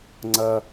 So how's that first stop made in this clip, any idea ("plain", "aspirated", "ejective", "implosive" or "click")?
click